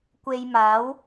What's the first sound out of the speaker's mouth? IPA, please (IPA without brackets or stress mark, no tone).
kʷ